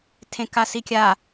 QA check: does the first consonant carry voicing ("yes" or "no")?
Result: no